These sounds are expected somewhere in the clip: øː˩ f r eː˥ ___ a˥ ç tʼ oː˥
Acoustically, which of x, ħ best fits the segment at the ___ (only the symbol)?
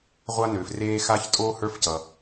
x